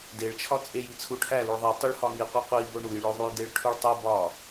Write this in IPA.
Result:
deɭt͡ʃʰɒ t͡sʼeji t͡sʰuʈʰæluɭ ðˤi tˤuɭhɒŋiqʷi qʷi boɳujɭoðˤuj deɭʈʰuɭtˤe bɒ

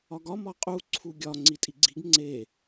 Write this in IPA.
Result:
ɒɡɒ mɒqʼu ǀʰuɡʲɒ ŋ͡ǀitʼiɡ͡ǀiɡ ŋ͡ǀe

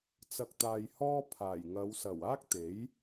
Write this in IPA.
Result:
t͡sɐ˨k̚t̪aː˨jhɔː˧ pʰaː˨˩jŋɐ˨˧wsɐ˨˩w aː˥k̚t̪e˨˥j

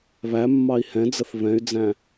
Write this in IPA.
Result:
βæmːɑi̯ hɛ̃d͡zəθ βɛ̃y̯d͡zæ̃

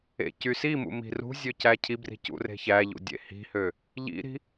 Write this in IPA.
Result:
ḛcysimṵ mi̤rṳzʲø cæcʰibri̤ cṵre̤çæʎṵ dʲḛhi̤hø | ʎḭɾi̤

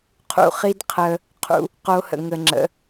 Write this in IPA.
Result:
qʰṵ˨χi˦d qʰəː˦ | qʰṵ˦ | qo˦hə̰˨ ŋə˨ŋ͡ǁə̰˨˦

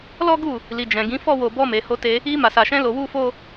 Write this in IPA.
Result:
lɔ˦ɡu˦˨ | li˨ d͡ʒɛ̃˨ɡĩ˨˦ fɔ˦˨wo˨bɔ˧ me˨ho˧te˧ | i˧ ma˨sa˨ʃɛ̃˧ lo˧wu˦fo˦

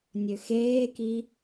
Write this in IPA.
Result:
nʲøxeːki

